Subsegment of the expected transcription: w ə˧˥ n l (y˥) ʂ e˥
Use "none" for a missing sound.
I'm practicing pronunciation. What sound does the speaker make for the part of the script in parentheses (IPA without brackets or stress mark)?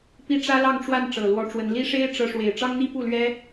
i˥